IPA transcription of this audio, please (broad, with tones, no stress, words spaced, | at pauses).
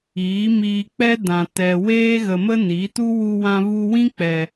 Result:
iː˨˦miː˧k͡pɛ˦ dã˨ tɛ˨weː˦ ɣə˧mə˦ni˨˦tu˦ wu˧wã˧ vu˧wĩ˦k͡pɛ˨